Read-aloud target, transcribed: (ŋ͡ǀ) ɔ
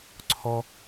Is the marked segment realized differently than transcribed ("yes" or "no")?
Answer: yes